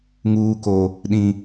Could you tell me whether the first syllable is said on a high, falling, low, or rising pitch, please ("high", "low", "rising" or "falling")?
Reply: low